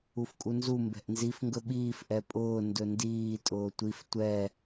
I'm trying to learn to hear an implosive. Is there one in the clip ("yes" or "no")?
yes